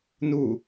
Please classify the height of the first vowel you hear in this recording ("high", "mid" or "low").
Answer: high